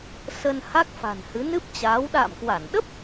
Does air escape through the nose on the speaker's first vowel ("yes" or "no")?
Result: no